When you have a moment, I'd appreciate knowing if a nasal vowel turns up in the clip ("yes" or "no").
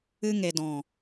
yes